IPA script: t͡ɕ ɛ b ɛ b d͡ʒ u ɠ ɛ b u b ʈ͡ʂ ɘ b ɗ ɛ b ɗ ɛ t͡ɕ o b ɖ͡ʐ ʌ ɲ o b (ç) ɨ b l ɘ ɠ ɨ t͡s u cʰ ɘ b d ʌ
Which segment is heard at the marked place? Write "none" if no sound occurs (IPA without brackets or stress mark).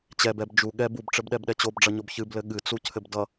ç